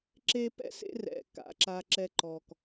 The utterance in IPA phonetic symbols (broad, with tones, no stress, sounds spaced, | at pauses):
ǁ e˦ p ɛ̰˦ s ḛ˦ r ɛ̰˨ k a̰˦ ǁ a˦ ǁ ɛ˦ ǃ ɔ˨ k